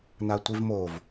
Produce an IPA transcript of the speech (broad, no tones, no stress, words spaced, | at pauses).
natʷivmov